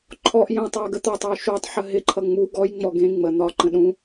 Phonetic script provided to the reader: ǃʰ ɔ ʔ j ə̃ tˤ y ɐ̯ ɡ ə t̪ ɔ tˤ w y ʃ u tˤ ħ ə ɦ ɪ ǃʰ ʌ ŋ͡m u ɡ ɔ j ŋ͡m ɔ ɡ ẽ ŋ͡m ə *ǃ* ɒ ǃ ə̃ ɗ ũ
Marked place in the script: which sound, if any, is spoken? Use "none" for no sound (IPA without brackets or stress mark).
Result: n̪